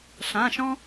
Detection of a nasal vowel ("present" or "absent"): present